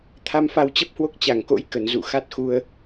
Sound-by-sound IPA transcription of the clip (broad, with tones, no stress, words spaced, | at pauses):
t̪ʰa˧mfa˧wt͡ɕə˦˥p̚hwo˦˥k̚ t͡ɕa˧˩ŋko̰˧˥j kə˧˩nzṵ˧˨ xa˦˥t̚xu˧ə̯